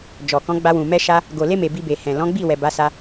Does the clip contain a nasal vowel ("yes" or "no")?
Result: yes